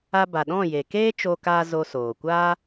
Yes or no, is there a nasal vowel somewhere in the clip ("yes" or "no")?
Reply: yes